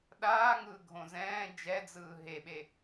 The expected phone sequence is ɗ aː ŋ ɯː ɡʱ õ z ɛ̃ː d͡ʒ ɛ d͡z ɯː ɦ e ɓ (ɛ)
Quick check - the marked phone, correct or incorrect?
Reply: incorrect: e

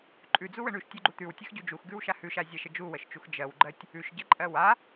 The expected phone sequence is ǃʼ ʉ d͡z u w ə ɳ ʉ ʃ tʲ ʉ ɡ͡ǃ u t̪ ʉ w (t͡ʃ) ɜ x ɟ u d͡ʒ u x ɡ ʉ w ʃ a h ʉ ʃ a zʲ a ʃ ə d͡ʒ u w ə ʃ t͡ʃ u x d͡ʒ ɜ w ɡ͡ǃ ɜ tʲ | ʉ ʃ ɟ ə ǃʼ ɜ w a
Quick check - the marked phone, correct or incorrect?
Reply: incorrect: tʲ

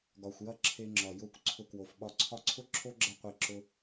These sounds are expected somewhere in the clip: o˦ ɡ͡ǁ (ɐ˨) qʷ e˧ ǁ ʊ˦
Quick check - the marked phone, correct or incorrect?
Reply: incorrect: ɐ˧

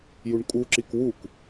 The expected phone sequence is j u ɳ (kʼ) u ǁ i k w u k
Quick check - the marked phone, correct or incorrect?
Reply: correct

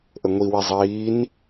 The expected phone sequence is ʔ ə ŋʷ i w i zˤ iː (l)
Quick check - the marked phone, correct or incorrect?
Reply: incorrect: n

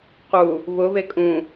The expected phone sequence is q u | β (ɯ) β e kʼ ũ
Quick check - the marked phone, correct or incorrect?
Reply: incorrect: ʊ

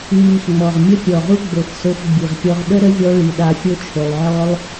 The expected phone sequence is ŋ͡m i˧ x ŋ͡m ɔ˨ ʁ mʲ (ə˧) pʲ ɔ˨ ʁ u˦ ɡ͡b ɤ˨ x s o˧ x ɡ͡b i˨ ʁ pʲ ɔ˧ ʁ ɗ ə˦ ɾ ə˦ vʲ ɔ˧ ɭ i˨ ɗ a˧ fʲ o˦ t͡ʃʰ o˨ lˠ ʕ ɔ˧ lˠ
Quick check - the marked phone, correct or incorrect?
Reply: incorrect: ə˦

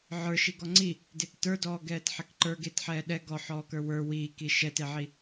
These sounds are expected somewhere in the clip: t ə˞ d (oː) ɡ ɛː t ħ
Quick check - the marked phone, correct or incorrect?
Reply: incorrect: ɔː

